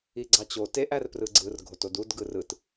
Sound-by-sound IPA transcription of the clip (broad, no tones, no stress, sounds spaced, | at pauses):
i ɡ͡ǀ ɑ t͡ɕ o t e ʔ æ r p r ɯ ɡ͡ǀ ɯ r ɡʱ o t o d u d ɡ ɯ r ɯ t